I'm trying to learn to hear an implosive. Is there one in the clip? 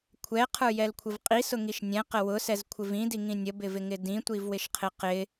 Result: no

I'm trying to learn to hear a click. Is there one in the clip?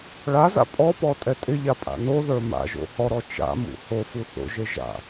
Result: no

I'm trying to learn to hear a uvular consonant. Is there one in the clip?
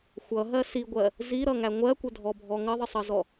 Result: no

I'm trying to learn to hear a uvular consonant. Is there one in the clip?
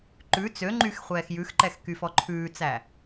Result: yes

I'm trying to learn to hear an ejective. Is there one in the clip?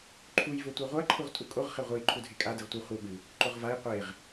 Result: yes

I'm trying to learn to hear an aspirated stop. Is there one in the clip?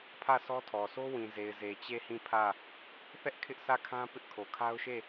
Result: yes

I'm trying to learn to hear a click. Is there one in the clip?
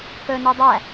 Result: no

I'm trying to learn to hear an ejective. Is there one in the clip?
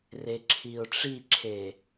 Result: no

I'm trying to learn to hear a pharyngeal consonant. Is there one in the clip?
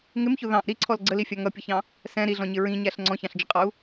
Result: no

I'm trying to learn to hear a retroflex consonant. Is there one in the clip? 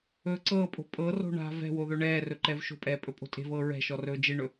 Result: yes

